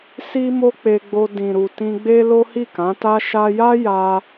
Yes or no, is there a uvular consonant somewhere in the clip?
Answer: no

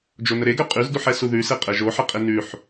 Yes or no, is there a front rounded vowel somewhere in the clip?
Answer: yes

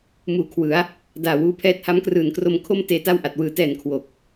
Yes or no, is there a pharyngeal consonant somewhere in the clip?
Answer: no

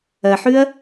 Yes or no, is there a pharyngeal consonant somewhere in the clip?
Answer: yes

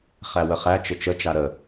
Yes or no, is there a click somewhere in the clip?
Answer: no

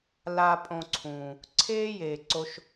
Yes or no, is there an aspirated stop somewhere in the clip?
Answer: yes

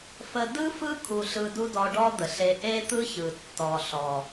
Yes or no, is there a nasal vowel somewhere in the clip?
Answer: no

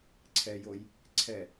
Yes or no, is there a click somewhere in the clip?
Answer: yes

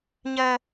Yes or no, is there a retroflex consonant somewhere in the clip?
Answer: no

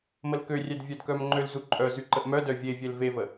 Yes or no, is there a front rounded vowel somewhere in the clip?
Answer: yes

